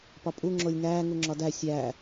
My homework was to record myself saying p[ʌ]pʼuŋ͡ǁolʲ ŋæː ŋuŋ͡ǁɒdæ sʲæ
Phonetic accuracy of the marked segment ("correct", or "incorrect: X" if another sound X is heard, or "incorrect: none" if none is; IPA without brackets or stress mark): incorrect: ɒ